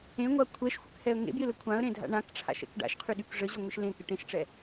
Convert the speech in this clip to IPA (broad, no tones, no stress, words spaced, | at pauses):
ẽŋʷa kʷʰɛʃxʷəkhɛə̯ ŋḛbjɪlə kʷʰãə̯ɾẽdʱa̰ ɳãkʈ͡ʂʰa̰ʃɛ̰k ɖa̰ʃqʰyɗyk ʐəʑɔŋʷɪʃ lẽkɪ ʈẽʃʈ͡ʂɛ